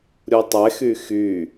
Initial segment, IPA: ɾʲ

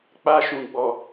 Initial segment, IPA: k͡p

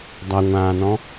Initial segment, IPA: dˤ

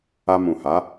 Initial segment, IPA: a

